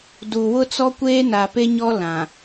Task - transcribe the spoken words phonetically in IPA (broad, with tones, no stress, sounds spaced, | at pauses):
d u˨ w ʊ˦ t͡s ɔ˦ kʷ eː˦ n a˨ p e˦ ɲ ɔ˦ l ã˨